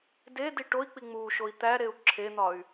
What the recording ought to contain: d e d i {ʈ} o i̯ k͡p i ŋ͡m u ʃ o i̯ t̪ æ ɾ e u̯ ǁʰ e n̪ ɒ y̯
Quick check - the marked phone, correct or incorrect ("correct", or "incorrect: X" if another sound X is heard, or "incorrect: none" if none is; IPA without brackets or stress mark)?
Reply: correct